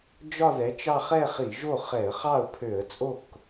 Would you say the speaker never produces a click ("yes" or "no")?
yes